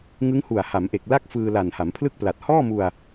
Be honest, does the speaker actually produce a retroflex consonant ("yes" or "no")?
no